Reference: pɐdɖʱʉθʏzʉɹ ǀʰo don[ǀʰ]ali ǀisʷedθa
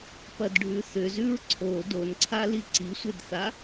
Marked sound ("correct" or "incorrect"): correct